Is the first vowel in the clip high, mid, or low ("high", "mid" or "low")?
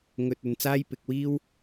mid